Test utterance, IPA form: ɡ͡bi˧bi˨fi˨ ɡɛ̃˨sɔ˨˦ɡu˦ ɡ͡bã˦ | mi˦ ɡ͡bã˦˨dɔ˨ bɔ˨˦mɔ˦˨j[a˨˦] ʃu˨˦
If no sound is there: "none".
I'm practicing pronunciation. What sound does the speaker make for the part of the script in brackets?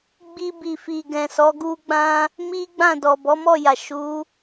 a˨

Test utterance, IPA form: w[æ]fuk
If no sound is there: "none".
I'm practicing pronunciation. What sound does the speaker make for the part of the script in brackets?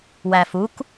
æ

